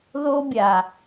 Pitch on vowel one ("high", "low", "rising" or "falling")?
high